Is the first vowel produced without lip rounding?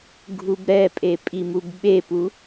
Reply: no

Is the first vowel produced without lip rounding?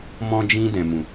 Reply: no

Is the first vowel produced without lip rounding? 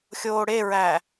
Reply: no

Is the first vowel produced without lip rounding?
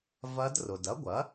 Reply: yes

